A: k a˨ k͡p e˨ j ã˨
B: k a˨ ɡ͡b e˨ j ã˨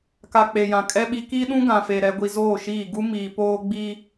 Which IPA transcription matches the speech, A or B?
A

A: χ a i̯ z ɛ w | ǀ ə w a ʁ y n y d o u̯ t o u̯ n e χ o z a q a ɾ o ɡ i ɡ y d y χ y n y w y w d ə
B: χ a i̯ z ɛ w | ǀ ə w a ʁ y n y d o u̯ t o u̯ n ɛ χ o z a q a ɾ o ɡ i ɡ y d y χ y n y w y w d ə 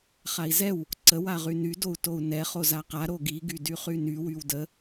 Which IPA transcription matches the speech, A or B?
B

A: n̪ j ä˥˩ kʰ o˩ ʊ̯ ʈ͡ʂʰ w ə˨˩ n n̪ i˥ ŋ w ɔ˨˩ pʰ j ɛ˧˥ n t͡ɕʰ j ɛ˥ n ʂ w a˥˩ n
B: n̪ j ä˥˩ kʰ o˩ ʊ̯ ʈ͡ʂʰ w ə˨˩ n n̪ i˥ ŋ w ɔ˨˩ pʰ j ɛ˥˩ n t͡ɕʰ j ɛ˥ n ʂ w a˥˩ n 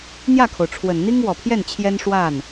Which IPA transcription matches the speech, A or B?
B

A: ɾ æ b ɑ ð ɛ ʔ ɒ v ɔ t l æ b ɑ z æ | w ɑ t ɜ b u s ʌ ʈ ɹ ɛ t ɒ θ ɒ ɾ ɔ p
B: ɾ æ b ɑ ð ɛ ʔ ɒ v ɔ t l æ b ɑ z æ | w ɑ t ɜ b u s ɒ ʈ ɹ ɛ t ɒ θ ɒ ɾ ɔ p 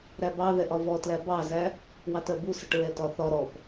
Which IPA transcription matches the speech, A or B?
A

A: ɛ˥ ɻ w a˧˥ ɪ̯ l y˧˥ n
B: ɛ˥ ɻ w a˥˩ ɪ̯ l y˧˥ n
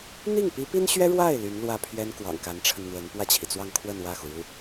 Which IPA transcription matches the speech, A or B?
B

